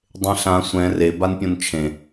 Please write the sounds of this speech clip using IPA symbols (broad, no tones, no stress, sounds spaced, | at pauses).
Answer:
dˤ ẽ ɬ ã sʷ ɛ̃ r e b a n pʲ õ n t͡ʃʰ ẽ